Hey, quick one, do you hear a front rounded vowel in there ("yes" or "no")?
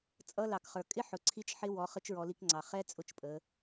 no